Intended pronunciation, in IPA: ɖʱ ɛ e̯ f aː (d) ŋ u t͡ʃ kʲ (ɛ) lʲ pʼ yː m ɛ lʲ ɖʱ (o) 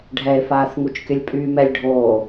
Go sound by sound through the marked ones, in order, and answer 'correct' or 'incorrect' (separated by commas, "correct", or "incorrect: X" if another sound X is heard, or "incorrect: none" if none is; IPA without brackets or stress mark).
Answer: incorrect: θ, incorrect: ə, incorrect: oː